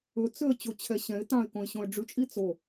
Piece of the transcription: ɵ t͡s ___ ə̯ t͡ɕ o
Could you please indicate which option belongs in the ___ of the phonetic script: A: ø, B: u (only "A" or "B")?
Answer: A